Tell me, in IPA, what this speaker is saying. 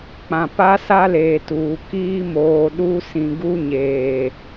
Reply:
k͡pã˨pa˦sa˦leː˨ tuː˨ kiː˦moː˨ɗu˦ sĩ˨ɡu˦ ɲeː˨

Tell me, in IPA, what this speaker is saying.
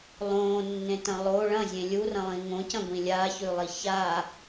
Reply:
lˠõːnːẽtɐ̃ lˠo ɭɐ̃zʲẽ lʲurɐ̃lˠĩ ŋõcɐ̃ɡʷĩ lʲaçʉlˠi ça

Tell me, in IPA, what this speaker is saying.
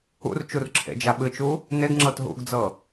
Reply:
ṵrt͡ʃur ǁʰḛd͡ʒaɓɨt͡ʃu | neɡŋ͡ǁɤt ɦṵɡd͡zɤ

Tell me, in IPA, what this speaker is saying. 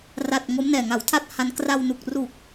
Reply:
ra˨˩t̚ ŋo˦˥mnɛː˨˩ŋa˩˦wtʰa˥˩t̚ ha˧n kra˧wnu˨˩k̚ru˨˩k̚

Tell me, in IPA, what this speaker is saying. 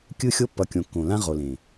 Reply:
kʲɯ˦˨xʲo˦ pːʌ˨ kʲõ˨kːõ˨lã˦ ʁo˨lẽ˨

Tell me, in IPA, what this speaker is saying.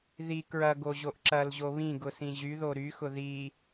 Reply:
ði kɹɐ ɡoʑoʔǁɐlʑo βĩ ɡʊsĩʑyðo ɾyxʊ ði

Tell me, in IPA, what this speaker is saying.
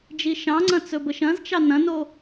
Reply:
d͡ʒiʃɑ̃ŋ͡ǀɐ̃ t͡sɵbəʃɐ̃zt͡ʃɑ nɐ̃no

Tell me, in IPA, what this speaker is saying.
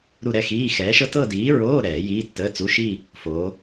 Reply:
ɾu˥˧ɾɛ˥˧xiː˧˥˧ xɛː˨˥ʃɤ˥ tɤ˥˧diː˨˥ɹoː˧˥˧ ɾɛː˨˩˦jiː˧˥˧tːəː˧˥˧t͡su˧˥˧ ʃi˥˧ | fo˨˥

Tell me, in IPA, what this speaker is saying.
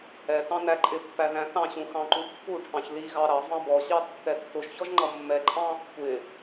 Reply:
ɛtɑ̃ næǃʼɪpːæ ðæ̃θɑ̃ɕũ xɑ̃ǃupːuʈʰɑ̃ç liɣɑ ɾɑ vɑ̃bɔɕɑ tːɛtːʊʒçɔʒ ŋ͡ǃʌmːɛǃʼɑ̃ | kʷɪ

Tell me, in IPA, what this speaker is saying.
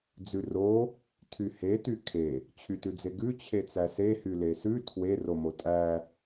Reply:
d͡zʉro | tʰyhe tykʰe | t͡ɕʰytʉd͡zeɡʉ t͡ɕʰet͡sæse hylesʉ tʰwe romotʼæ

